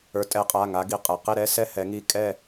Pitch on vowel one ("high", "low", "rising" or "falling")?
rising